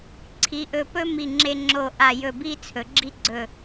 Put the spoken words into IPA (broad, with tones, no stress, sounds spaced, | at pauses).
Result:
ǀʰ i˩˧ ʔ ɵ˧˩ p ɵ˥ m i˧˩ ŋ͡ǁ e˧ ŋ͡ǁ o˧˩ ʔ a˧˩ j ɵ˧˩ b i˥ t͡sʰ ɵ˩˧ ɡ͡ǁ i˥ ɡ͡ǀ ɵ˧˩